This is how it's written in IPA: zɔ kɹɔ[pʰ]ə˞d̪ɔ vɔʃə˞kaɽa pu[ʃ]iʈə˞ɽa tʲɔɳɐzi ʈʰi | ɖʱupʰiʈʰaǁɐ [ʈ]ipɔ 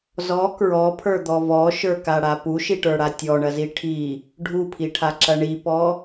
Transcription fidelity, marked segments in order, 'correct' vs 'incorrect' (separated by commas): correct, correct, incorrect